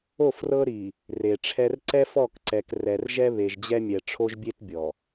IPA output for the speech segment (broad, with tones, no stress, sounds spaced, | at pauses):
o˦˨ f r ɤ˦ ɾ i˨ | r e˨ ʈ͡ʂʰ ɛ˦ r ǀ ɛ˦ f ɔ˦˨ k ǀ ɛ˨ k r ɛ˨ r ʒ ɛ˦ β e˨ ʒ d͡ʑ ɛ˦ mʲ ɛ˨ ʈ͡ʂʰ o˦ ʒ bʲ e˦ t bʲ ɔ˨